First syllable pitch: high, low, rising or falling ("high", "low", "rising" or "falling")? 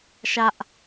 high